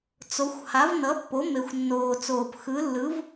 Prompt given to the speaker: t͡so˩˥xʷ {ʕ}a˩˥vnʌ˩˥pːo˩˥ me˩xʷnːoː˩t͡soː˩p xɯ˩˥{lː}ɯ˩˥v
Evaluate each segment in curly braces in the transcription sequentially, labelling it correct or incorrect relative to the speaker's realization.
incorrect: h, correct

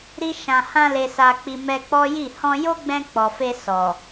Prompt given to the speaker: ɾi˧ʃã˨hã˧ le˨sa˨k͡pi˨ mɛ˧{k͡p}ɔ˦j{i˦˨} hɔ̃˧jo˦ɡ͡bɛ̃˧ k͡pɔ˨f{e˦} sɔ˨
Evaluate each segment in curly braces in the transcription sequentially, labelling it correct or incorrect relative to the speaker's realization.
correct, correct, incorrect: e˧

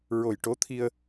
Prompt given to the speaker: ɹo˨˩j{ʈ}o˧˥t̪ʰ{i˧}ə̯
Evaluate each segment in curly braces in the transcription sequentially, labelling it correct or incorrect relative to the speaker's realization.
correct, correct

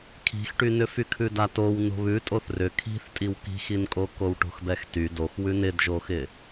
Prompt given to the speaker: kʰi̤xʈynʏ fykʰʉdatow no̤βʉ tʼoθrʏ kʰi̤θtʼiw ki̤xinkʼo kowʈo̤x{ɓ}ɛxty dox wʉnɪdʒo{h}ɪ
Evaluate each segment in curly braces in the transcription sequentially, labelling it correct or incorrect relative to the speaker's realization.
incorrect: b, incorrect: x

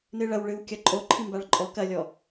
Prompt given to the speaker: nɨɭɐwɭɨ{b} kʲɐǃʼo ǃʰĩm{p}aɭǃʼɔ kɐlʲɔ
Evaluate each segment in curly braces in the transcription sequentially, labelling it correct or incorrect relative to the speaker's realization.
incorrect: w, incorrect: b

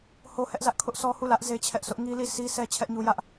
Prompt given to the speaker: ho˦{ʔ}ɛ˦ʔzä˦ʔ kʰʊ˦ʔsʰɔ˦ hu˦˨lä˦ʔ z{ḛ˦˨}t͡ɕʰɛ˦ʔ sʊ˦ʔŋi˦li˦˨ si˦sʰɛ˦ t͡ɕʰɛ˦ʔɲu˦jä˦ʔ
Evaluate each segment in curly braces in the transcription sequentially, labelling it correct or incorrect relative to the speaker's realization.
incorrect: h, incorrect: e˦

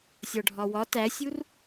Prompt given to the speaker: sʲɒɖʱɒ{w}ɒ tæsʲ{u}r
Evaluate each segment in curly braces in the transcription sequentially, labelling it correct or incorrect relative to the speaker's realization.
correct, correct

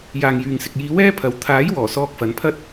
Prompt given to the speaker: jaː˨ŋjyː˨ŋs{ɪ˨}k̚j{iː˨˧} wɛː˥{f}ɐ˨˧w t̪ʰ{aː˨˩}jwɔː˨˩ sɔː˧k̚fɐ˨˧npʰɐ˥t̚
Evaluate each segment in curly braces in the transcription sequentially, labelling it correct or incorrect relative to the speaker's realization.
correct, correct, incorrect: pʰ, incorrect: aː˨˥

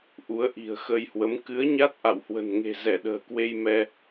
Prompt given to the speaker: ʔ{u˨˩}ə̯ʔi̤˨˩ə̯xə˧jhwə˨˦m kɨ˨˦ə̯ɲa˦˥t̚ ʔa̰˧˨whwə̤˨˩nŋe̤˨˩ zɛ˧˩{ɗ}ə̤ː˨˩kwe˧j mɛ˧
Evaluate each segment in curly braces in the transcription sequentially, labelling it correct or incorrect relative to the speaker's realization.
incorrect: u˨˦, correct

